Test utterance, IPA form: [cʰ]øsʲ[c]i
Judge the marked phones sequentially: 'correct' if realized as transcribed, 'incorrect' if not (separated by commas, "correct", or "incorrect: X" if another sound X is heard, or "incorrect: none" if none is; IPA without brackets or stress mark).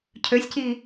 correct, correct